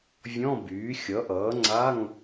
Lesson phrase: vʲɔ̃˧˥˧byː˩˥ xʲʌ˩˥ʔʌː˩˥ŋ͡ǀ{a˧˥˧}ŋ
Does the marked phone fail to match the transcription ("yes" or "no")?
no